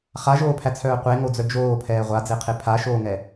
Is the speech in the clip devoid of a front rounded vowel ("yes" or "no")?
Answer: no